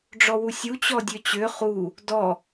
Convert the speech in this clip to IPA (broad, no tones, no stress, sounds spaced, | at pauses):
ɖ͡ʐ ɔ w u sʲ u t͡ɕ ɔ dʲ ø t͡ɕ ø χ u | d ɔ